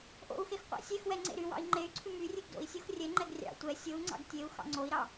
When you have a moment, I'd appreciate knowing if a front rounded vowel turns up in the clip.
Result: yes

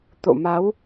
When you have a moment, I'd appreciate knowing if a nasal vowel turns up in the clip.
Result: no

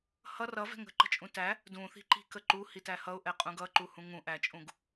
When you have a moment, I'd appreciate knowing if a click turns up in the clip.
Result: yes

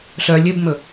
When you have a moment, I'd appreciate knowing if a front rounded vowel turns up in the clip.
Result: yes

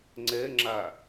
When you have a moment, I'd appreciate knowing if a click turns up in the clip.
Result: yes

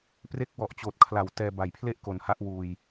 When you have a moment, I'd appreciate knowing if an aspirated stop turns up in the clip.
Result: yes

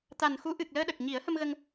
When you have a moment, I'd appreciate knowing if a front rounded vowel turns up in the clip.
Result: no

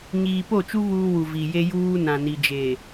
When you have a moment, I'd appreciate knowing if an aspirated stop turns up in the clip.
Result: no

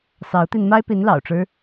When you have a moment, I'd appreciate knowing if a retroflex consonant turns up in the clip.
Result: yes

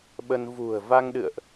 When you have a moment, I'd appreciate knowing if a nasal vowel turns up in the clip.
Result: no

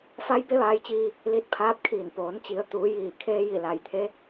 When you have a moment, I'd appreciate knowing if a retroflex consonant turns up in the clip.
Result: no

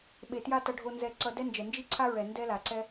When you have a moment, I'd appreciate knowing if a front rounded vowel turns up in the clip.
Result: no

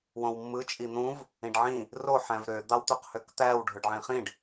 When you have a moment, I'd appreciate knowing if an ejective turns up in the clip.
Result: yes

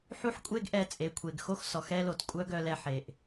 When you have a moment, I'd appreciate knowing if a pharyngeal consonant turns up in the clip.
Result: yes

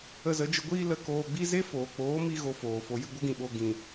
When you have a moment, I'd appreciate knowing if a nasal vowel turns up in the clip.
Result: yes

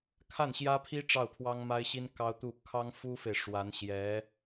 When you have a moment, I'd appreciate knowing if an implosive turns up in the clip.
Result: no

